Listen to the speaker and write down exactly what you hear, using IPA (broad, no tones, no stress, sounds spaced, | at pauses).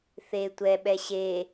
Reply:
θ e tʷ ɛ ɓ ɛ ɕ e